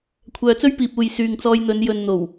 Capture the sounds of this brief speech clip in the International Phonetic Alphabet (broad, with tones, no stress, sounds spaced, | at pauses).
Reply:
kʷʰ œː˨ t͡s ɵ˥ ɥ p iː˨ p̚ uː˨ j s yː˨ ŋ t͡s ɔː˧ j n̪ ɵ˨˧ n j ɵ˨ n n̪ o˨˩ w